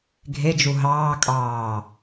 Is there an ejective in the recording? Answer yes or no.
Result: yes